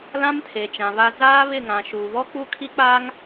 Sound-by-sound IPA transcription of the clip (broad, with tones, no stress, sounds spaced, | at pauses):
l ã˦ m tʰ e˨ t͡ʃ ã˨ β a˦ z aː˦ β ɪ˦˨ ŋ ã˨ ʃ uː˨ β ɔ˦ k͡p u˦˨ kʰ i˦ k͡p aː˦ ŋ